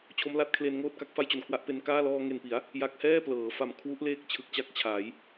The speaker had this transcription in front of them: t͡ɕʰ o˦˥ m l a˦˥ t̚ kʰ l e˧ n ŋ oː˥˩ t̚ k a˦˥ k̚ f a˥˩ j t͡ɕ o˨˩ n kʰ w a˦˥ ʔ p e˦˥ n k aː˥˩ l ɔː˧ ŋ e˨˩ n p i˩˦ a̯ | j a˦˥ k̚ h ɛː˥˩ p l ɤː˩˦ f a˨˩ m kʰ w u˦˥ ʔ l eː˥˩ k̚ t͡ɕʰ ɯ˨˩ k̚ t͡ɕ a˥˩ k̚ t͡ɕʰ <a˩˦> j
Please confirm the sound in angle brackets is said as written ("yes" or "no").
yes